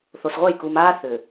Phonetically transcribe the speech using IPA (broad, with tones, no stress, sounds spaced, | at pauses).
θ o˨ s ʁʷ ɛ˦˨ j k u˨ m aː˦ θ ʏː˨